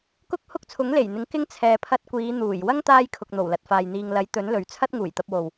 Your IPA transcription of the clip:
k ʊ˥ k̚ h ʊ˥ k̚ t͡sʰ ʊ˨˥ ŋ l e˨˩ j n̪ ɪ˨˥ ŋ k ɪ˥ ŋ t͡sʰ ɛː˨ pʰ ɐ˧ t̚ kʷ iː˨˧ n̪ uː˨˩ j w ɐ˥ ŋ t̪ aː˥ j kʰ ʊ˨ k̚ n̪ o˨˩ w l ɐ˨ t̚ f aː˨ j n̪ iː˨ ŋ l ɐ˨˥ j t̪ ɵ˨˥ n l ɵ˨ ɥ t͡sʰ ɐ˥ t̚ ŋ uː˨˩ j t̪ ɐ˧ p̚ w o˨ w

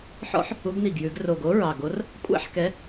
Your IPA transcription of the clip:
ħ ɔ̰˦˥ ħ | u˨˦ ɡ n i˨˩ ɡ j ʉ˨˩˦ ɡ r o˨˩ ɡ o˨˦ ɹ ɑ˨˩ ɡ o˨˦ r | kʷʼ æ̰˦˥ ħ k ɛ˨˦

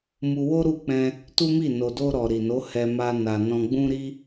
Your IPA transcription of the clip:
m u˧ w o˦ ɾ u˦˨ k͡p ɛ̃˧ | t u˦ m i˦˨ n o˨ d o˧ ɾ ɔ˨ ɾ i˨ n o˨˦ h ɛ˧ m a˧ n a˨ n ɔ̃˧ ɡ͡b ũ˦ ɾ i˦

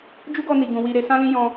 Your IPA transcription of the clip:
d͡ʒ u˦ ɡ ɔ˧ n i˨ ɡ ũ˨ w i˧ ɾ e˧ s ã˦ l ĩ˦ j ɔ̃˧

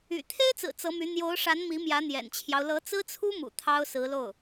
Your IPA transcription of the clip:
y̰˨˩ t̪ʰ e˥ ɪ̯ t͡s ɹ̩˨˩ t͡s ɤ˧˥ m y˧˥ n̪ j o˧˥ ʊ̯ ʂ a˧˥ n m i˧˥ m j ä˧˥ n̪ j ɛ̰˨˩ n t͡ɕʰ j ɑ˦ ʊ̯ l ɤ˧˥ t͡s ɹ̩˥ t͡sʰ u˥ m ṵ˨˩ t̪ʰ ɑ˥ ʊ̯ s ɹ̩˧˥ l o˥˩ ʊ̯

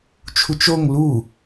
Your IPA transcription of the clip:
t͡ʃʰ u t͡ʃ o ŋ l u

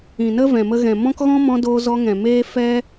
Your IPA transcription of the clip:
ĩ˨ n ə˦ v ɛ̃˨ m ə˧ ɣ ɛ̃˨ m ɔ̃˦ k ɣ ɔ̃˦ m ɔ̃˧ d oː˧ z ɔ˧ ŋ ɛ̃˨ m eː˦ f ɛ˦

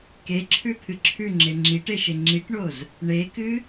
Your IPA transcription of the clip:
k e ǁʰ ʉ t̪ʰ ɨ ǁʰ ʉ ŋ͡ǁ e ŋ͡ǁ i ʈ e ʃ e ŋ͡ǁ i ʈ ɳ o z | ɳ e k ɨ

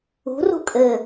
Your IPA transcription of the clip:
ṳ r ṳ kʼ ɘ

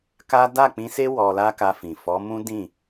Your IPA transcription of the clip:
k a˦ d a˦˨ k͡p ĩ˧ s e˦ w ɔ˧ l a˦ k a˧ f ĩ˨ f ɔ˨˦ m ũ˦ d ĩ˦˨

